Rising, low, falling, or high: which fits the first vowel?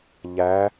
rising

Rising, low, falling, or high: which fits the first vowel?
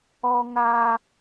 high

